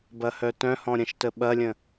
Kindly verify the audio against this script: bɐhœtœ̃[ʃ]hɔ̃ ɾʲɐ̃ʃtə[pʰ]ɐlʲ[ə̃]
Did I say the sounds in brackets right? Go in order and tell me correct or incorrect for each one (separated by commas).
incorrect, incorrect, correct